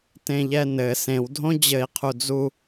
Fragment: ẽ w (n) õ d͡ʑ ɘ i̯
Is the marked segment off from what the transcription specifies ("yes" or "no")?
yes